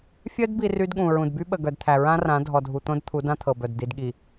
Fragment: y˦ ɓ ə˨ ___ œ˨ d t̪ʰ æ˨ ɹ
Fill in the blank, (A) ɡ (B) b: A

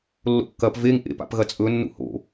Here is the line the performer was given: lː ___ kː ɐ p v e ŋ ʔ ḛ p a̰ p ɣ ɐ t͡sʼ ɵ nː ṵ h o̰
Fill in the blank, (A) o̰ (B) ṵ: A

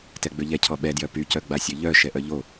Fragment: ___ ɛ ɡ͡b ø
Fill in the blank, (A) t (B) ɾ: A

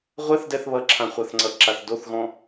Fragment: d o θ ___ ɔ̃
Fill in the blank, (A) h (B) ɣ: B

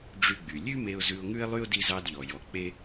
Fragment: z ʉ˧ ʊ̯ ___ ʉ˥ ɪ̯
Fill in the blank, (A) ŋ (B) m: A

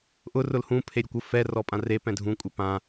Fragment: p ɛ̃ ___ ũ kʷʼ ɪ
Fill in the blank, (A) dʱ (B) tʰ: A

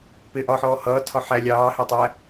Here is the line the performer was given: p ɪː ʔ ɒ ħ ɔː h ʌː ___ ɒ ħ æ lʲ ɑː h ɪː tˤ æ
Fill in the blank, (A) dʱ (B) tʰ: B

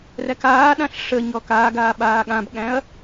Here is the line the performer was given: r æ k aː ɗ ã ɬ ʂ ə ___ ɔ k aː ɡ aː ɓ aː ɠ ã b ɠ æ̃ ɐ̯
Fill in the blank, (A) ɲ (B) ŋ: A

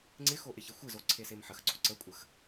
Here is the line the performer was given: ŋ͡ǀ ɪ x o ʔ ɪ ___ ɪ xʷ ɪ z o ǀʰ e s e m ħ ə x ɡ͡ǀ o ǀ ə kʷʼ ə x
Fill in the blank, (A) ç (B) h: A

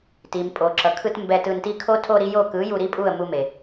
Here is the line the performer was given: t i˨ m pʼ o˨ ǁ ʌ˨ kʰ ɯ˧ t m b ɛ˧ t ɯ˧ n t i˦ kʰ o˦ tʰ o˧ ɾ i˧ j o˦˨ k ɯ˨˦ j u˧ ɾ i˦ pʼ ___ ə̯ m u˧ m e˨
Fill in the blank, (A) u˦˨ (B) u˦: A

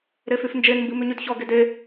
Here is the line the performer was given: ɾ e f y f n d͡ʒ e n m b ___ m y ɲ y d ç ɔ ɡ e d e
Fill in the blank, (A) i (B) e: A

